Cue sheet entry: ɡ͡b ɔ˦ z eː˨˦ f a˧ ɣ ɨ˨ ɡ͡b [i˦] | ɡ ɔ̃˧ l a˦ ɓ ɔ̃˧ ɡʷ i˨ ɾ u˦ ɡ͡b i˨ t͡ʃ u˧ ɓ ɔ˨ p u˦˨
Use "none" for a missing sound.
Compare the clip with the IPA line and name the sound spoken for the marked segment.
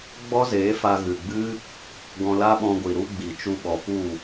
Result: ɨ˦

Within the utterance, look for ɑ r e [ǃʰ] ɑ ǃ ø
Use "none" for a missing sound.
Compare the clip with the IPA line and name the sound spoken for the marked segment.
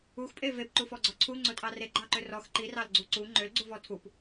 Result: ɡ͡ǃ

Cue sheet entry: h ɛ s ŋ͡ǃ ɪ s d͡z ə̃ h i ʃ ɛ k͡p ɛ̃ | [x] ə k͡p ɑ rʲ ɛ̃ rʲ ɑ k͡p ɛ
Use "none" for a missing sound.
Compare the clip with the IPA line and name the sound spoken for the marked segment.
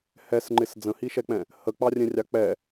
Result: h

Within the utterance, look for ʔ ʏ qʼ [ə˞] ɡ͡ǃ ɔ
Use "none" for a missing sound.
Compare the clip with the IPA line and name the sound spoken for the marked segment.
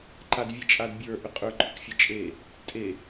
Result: ə˞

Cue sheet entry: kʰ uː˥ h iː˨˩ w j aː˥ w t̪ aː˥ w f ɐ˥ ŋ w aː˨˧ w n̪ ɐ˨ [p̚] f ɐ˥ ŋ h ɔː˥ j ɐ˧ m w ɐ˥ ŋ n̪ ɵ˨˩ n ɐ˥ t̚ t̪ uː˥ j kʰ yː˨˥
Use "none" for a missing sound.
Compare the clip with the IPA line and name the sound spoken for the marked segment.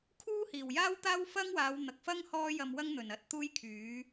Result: k̚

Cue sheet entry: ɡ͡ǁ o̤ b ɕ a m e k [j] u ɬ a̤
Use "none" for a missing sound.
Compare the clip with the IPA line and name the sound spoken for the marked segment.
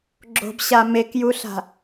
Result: j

